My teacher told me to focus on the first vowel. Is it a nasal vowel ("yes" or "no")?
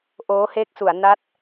no